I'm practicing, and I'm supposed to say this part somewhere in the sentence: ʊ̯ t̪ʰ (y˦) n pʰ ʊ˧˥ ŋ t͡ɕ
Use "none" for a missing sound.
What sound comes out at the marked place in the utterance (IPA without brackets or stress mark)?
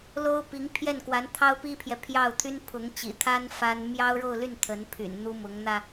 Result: y˥